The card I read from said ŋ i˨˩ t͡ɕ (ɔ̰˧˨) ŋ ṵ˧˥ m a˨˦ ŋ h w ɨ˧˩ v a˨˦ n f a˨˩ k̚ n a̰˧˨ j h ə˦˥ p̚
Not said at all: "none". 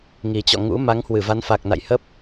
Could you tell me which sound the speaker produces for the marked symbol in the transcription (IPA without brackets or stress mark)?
ɔ̰˧˨